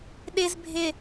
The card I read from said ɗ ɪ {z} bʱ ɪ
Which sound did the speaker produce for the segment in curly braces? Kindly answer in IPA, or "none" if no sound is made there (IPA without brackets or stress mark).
z